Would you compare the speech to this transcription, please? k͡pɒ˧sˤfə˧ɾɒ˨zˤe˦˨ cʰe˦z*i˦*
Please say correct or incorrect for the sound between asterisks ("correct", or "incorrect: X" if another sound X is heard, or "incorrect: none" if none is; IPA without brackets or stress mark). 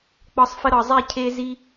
correct